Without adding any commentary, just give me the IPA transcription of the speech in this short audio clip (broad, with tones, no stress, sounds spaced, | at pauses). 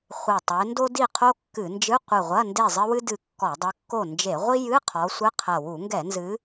χʷ ɘ˧˩ tˤ e˨˦ n d o˥ d i˥˨ qʰ o˥ kː ɨ˧˩˧ n d͡ʒ ɨ˧˥˧ qʷ ɨ˧˩ ʁʷ ɐ˧˥˧ n d e˥˨ zˤ ɘ˥ w ɨ˥ d ɨ˧˩ kː ɔ˧˩˧ dˤ ɨ˨˦ kː o˥˨ n d͡ʒ e˧˩˧ ʁʷ i˥ j ɨ˧˥˧ qʰ ɔ˨˦ sʷ ɘ˧˥˧ qʰ ɐ˧˩ w u˧˩˧ ŋ ɡ ɛ˧˩˧ n z ɨ˨˦